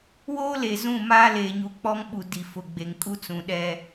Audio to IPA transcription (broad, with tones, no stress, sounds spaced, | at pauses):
w oː˦ l e˨ z ũ˦˨ m aː˦ l eː˨ ɲ u˨ k͡p ɔ˦ ŋ ɓ u˨ d i˨ f ʊ˨ ɡ͡b e˨ ŋ kʼ u˦ t͡s ũ˨ ɗ ɛ˦